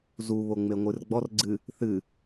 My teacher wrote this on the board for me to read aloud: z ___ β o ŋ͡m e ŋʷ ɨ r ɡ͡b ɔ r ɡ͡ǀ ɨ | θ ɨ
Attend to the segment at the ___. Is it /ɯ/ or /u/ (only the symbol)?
u